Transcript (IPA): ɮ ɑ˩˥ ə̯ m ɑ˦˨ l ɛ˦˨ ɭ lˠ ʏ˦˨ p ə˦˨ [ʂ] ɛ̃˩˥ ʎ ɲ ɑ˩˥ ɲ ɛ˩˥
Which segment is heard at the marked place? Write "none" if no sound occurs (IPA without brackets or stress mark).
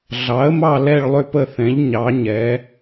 θ